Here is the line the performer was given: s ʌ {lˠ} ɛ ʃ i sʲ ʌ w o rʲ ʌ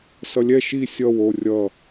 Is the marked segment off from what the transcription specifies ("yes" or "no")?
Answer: yes